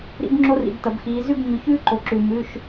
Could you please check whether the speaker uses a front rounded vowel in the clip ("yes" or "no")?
no